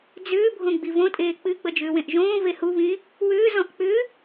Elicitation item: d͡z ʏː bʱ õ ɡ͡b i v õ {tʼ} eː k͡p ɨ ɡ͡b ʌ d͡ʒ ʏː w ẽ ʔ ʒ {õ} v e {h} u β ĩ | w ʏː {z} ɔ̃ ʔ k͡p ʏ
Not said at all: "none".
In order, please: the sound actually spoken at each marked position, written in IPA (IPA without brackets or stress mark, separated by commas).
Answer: tʼ, õː, h, z